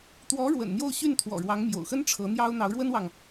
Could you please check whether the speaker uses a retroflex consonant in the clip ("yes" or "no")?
yes